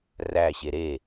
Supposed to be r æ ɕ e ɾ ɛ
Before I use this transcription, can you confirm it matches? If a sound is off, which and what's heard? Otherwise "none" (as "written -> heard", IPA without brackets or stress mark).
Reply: ɛ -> e